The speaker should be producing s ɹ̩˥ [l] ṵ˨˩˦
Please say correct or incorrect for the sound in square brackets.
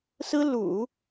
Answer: correct